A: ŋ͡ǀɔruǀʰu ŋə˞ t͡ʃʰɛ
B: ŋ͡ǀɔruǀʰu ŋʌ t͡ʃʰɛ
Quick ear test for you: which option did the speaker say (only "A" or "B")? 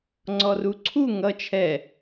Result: B